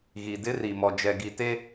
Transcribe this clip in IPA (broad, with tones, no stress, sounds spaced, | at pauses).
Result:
ɣ i˨ d ɪ˦ r i˨ m ɔ˨ d͡ʒ ɛ˨ ɡ i˨ t e˦